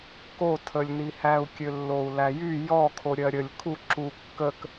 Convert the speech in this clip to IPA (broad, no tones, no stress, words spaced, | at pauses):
kotʰəlʲnihæu̯ kʲølːou̯læjy jɔkʰo ɾʲɜɾʲəlʲ kʰu ǁu kːək